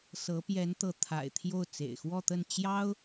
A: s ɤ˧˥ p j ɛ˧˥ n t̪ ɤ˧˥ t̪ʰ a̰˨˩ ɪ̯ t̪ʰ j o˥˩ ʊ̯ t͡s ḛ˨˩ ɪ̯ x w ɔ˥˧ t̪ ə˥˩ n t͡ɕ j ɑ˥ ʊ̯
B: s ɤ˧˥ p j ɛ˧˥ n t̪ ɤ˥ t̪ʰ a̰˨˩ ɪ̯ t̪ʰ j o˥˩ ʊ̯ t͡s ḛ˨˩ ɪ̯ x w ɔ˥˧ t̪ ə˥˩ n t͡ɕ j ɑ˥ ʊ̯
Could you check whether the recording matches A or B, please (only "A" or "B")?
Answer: A